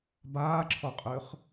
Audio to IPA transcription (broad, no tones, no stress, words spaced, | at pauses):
baːǁʰɔqʼʏːχ